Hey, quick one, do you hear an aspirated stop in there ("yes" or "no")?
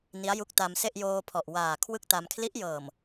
yes